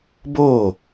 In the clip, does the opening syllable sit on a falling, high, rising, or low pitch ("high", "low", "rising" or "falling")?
falling